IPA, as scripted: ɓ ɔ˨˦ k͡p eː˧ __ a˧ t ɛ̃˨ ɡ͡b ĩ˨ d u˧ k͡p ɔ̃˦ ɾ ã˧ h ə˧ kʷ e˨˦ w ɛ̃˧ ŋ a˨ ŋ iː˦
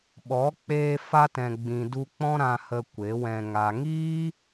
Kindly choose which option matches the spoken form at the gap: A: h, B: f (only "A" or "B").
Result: B